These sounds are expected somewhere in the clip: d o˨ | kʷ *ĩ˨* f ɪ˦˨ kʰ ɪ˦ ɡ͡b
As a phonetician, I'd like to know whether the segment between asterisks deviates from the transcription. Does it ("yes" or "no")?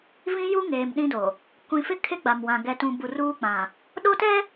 no